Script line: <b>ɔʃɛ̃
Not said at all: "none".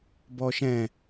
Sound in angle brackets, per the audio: b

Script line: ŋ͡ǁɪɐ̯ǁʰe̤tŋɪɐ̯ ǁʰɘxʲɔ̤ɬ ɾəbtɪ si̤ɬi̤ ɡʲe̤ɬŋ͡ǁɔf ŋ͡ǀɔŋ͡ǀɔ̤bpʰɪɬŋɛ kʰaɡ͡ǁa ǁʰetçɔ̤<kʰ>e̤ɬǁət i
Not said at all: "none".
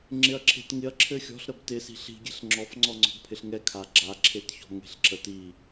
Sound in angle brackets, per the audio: ŋ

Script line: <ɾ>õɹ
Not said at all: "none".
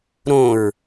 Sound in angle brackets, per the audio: ɾ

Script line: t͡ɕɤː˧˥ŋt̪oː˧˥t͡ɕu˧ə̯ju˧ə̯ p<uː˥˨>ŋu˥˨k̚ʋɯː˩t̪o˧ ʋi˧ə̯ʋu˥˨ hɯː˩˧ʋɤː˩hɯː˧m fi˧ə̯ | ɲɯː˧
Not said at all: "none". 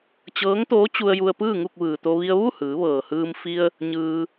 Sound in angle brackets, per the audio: ɯː˥˨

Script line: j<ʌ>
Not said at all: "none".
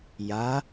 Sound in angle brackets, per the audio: a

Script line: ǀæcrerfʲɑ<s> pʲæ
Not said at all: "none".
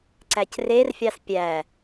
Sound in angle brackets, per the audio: s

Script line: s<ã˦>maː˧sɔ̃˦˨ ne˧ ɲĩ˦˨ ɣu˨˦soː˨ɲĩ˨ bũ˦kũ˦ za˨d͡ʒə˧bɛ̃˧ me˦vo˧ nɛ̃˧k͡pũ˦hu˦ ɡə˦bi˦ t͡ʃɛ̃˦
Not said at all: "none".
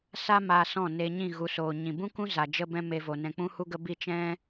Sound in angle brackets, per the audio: a˦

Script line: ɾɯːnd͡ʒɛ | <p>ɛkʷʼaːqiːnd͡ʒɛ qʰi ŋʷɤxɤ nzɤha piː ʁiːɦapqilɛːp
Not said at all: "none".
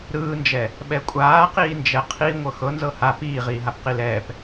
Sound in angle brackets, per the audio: ɓ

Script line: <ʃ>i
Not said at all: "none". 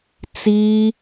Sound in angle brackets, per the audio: t͡s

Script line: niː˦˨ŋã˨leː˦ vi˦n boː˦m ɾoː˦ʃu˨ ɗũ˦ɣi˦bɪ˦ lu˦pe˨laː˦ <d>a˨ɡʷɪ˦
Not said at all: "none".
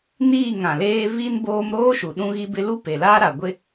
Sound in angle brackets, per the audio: ɾ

